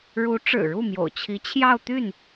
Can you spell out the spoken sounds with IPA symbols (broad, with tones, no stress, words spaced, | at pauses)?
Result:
ɻu˧˥ʈ͡ʂɻ̩˨˩ɻu˥˩mjo̰˨˩ʊ̯ t͡ɕʰi˧˥t͡ɕʰjɑ˥˧ʊ̯t̪y˥˩n